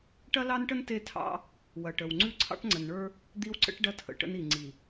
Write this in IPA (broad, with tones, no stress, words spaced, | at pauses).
ʈɐ˦lɑ˦nʈə˦n te˦tʰɑ̰˦ | wɐ˨ʈə˨w ŋ͡ǀʉ˦ǀʰɑ̰˦ʈŋ͡ǀə˨nɳə˞˦ | d̪i˦wǀə̰˦ʈ ɖɐ˦tʰə̰˨ʈə̰˦ni˨ ŋ͡ǀi˨